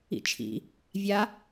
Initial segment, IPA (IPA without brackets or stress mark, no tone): ḭ